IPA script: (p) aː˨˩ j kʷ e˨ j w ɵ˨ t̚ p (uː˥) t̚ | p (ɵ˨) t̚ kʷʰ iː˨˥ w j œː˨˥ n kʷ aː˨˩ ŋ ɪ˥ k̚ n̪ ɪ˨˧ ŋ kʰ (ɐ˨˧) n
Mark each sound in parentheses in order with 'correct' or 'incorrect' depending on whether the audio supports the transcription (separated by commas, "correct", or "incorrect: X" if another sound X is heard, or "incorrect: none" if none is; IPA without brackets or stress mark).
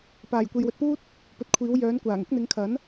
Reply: correct, correct, correct, incorrect: ɐ˨˥